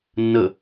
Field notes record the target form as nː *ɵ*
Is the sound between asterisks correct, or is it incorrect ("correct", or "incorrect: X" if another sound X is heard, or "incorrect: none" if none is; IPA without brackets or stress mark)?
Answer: incorrect: ə